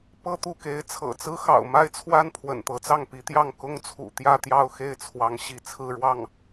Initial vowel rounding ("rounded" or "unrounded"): unrounded